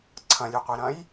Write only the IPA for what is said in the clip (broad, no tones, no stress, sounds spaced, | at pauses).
ǀʰ ɐ̃ lʲ ʉ qʷ i ɾ ɐ̃ j